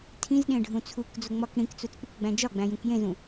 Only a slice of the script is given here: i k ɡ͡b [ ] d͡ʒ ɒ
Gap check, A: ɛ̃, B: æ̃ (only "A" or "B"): B